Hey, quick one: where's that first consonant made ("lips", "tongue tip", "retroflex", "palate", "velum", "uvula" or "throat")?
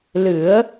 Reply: tongue tip